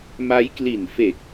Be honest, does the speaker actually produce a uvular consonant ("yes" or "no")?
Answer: no